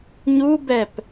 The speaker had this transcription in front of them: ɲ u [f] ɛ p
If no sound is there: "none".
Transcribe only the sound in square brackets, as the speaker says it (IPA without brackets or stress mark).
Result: b